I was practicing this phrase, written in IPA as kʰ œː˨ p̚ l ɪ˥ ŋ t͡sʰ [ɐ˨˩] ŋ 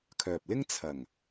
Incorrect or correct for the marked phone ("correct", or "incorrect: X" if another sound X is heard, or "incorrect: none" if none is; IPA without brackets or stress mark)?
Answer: correct